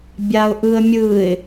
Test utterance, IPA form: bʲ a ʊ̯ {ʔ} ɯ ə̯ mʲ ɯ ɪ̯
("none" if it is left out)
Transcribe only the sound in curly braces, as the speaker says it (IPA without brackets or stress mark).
ʔ